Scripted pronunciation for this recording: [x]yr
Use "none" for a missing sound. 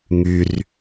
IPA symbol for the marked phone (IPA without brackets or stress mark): ŋ